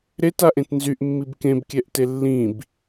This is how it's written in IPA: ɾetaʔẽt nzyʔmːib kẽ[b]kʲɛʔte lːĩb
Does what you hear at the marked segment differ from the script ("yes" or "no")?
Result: no